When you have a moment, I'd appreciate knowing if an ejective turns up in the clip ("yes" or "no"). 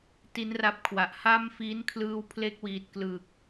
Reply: no